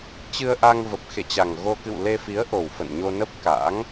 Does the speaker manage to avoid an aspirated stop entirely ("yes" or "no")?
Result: yes